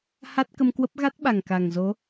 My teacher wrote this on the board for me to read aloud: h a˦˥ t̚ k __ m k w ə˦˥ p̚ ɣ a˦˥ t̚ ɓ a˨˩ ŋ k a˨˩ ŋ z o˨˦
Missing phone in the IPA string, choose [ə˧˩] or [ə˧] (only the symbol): ə˧